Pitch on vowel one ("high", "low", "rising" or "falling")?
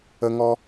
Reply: high